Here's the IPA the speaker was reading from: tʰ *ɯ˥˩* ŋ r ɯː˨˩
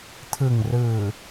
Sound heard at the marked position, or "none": ɯ˨˩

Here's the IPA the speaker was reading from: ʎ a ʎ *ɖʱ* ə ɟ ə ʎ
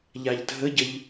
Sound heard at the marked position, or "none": dʱ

